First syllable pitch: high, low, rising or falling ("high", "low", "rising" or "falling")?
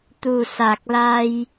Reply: low